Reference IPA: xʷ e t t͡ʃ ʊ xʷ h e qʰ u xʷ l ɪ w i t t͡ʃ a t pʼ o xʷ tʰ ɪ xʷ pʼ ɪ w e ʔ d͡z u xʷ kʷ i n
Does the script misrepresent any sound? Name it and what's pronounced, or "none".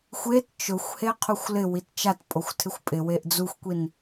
none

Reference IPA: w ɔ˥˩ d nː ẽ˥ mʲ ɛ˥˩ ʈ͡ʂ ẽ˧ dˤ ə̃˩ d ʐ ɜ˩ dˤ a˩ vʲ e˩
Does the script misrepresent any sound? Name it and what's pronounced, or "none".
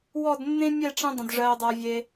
none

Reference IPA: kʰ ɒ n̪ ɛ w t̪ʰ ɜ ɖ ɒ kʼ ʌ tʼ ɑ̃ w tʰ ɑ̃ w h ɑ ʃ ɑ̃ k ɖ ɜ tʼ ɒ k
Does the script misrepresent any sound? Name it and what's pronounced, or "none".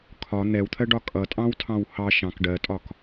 none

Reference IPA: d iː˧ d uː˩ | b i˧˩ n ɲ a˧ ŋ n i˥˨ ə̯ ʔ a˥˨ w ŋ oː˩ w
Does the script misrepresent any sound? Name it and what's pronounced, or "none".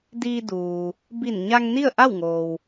none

